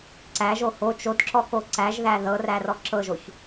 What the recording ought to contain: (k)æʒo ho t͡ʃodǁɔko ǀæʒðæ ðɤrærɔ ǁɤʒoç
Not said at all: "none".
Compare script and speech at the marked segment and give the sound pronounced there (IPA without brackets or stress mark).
ǀ